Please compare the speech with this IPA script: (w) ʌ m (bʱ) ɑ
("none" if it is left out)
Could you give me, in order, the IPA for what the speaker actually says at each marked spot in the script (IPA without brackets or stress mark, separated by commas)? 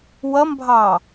w, bʱ